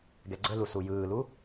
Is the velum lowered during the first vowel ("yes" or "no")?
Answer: no